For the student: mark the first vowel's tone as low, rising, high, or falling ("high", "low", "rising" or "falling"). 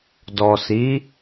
low